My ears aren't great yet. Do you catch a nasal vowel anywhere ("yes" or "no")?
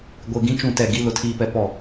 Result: yes